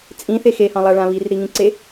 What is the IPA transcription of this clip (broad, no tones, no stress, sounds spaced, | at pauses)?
t͡sʼ ĩ θ e x e h ɑ̃ lˠ a ɭ ã β i r ɾ i ŋ ĩ ǀ e